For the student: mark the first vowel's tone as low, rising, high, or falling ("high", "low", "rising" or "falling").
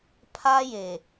high